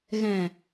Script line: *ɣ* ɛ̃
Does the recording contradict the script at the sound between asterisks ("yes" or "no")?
no